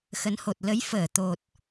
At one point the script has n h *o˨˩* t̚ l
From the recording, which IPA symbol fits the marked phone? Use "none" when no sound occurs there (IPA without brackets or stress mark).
o˨˩